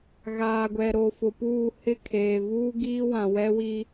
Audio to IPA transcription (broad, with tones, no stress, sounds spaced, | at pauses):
ɣ aː˨ ɡʷ ɛ˨ ɾ o˨ f ʊ˨ p uː˦˨ h ɪ˦˨ kʰ eː˨ v uː˦ ɡ iː˦ w ã˨ w ɛ˦ w i˦